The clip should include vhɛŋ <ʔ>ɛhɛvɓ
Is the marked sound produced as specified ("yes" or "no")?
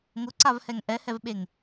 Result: yes